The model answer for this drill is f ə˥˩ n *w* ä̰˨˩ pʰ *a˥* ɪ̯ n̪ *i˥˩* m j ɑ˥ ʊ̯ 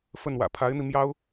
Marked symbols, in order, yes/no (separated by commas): yes, no, no